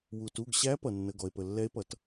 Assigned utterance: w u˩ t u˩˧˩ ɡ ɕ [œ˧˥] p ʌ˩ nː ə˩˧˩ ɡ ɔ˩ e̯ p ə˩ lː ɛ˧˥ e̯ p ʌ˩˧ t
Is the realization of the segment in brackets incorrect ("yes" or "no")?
yes